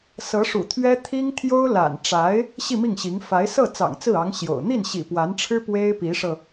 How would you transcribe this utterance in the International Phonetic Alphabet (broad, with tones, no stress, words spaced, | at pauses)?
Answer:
sɤ˧˥ʂṵ˨˩t̪ʰɥɛ˥ t̪ʰi˥ŋt̪ʰjo˥ʊ̯la̰˨˩n ʈ͡ʂa˧˥ɪ̯ | ɕi˥˧mi˥˩ŋɕi˧˥ŋ fa˧˥ɪ̯ sɤ˥˩ t͡sɑ̰˨˩ŋt͡sɹ̩˥˩ɑ˧˥ŋ ɕjo̰˨˩ʊ̯ n̪i˥˩nɕḭ˨˩pwa˧˥nʈ͡ʂʰɻ̩˥ pwe˥ɪ̯pi˧˥ʂɤ˧